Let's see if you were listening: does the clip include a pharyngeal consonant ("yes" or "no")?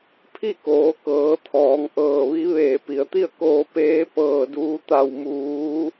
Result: no